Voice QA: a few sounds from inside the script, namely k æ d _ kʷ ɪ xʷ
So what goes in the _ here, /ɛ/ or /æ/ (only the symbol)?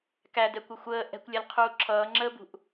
ɛ